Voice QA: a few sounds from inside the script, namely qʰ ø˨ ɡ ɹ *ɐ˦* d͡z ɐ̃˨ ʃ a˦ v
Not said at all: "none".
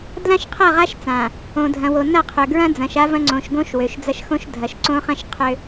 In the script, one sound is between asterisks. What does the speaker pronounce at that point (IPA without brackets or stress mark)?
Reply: ɐ̃˦